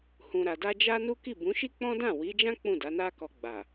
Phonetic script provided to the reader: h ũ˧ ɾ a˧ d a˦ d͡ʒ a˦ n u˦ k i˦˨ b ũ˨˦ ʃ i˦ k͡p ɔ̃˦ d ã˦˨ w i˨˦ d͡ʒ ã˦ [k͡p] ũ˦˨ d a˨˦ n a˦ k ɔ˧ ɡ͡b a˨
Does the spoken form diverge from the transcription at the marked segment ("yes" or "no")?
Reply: no